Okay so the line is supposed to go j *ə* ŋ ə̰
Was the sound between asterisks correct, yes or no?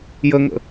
yes